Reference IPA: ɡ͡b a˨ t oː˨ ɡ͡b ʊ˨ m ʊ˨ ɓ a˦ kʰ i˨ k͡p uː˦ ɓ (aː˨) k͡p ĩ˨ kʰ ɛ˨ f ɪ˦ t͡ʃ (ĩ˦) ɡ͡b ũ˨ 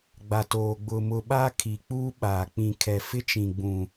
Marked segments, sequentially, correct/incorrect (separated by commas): correct, incorrect